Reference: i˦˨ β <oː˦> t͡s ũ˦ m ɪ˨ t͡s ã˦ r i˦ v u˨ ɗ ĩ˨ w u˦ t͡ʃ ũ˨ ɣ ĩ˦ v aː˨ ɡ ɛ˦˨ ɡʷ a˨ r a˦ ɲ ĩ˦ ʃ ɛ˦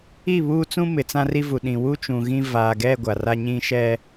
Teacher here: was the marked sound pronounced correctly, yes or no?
no